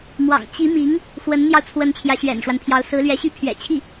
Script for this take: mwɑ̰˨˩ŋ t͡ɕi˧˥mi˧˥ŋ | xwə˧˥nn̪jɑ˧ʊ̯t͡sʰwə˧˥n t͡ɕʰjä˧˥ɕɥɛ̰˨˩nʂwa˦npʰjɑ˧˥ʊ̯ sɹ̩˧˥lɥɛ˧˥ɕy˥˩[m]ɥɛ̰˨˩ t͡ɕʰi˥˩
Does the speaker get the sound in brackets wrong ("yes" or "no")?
yes